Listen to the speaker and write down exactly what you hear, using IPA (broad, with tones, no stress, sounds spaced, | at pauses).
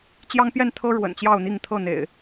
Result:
t͡ɕ j ɑ˦ ŋ p j ɛ˥˨ n t̪ʰ ɤ˦ ɻ w ə̰˨˩ n t͡ɕ j ɑ˥˨ ʊ̯ n̪ i˥˨ ŋ t̪ʰ ɤ˥˨ n̪ ḛ˨˩ ɪ̯